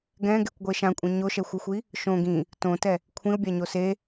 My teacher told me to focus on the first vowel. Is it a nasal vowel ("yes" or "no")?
yes